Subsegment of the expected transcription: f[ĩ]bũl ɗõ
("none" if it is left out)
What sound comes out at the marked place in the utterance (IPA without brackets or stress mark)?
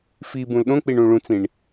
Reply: i